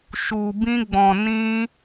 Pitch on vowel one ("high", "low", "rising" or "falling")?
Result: low